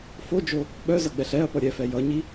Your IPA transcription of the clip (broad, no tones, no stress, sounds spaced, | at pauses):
f o d͡ʒ o | ɓ œ z ʌ ɡ͡b ɛ ɬ ɛ ɐ̯ p ʌ ɾʲ ɛ f ɛ j ʌ ɲ i